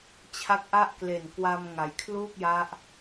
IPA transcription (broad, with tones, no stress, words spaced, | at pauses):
t͡ɕʰa˦˥k̚ʔa˥˩ʔkle˨˩n kwa˧mŋa˩˦jkʰluː˥˩k̚ ja˦˥ʔ